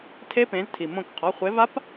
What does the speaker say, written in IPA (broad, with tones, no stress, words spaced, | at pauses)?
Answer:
tʰe˦˥pẽ˨˦ztʰi˩ mõ˦˨k qʰɔ˩˧˩χʷe˨˦va˦˥p